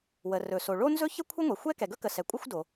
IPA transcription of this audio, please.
w ə˩ r ɵ˩ s o˩ ɭ o˥ n z ɵ˥ ç ə˥ kʷʰ ə˥ ŋʷ ɛ˩ xʷ ɛ˥ k ɛ˩ ɡ ɵ˥ k ə˩ s ɛ˩ kʷʼ ə˥ xʷ d o˩

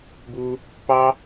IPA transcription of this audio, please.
b u˦ | p ɑ˦

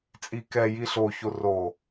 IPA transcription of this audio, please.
t͡sʼ i k ɛ j i ɬ o ç o r o

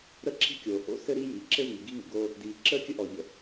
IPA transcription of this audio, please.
ɾ ə˥ ǁ i̤˥ kʲ oː˩ h o̰˥ s ɘ˥ ɾ i˥ j i˩ ǁ ɘ˥ v i˩ ɡ i˥ ŋ ɘ˩ ɡ oː˥ | d iː˩ ǁ əː˥ kʲ ə˥ ʔ ɔ˩ ʎ ə̰˩

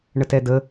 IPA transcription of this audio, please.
ɳ ə t ɛ d ə

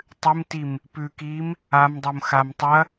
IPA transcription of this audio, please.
tˤ ɨ m t i m | p ʉ k i m | a m dˤ o m x a m tˤ ɐ

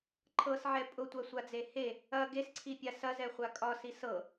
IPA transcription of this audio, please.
ǃʰ ɤ s ʕ ɛ pʼ ʊ tʷ a sʷ a d͡z e h e | ɐ ɡ e s ǀʰ i pʲ a s ɐ z ɛ χʷ a kʼ ɒ s i s ɤ

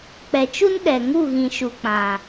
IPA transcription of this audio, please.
k͡p ɛ˨ t͡ʃ u˦ n ɗ ɛ˨ ŋ u˦˨ ɣ ĩ˨ ʃ u˨ k͡p ã˨

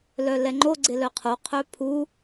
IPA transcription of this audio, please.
l œ l ɛ ŋ͡ǃ o ɡ͡ǀ ɪ l œ qʰ o qʰ œ pʰ u

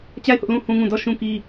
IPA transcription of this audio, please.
t͡ɕ a˦˨ ɪ̯ h ʊ˦ ʔ l ũ˦˨ h ũ˦ ŋ ũ˦˨ d ɔ˦˨ ʃ ũ˦ k i˦

